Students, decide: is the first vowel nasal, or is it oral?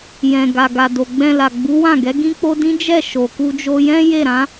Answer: nasal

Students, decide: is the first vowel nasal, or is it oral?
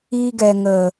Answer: oral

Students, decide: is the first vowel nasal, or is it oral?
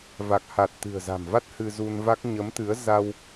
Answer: oral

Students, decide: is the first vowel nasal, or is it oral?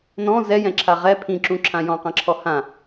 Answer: nasal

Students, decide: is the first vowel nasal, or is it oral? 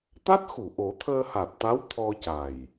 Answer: oral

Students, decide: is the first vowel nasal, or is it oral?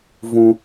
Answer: nasal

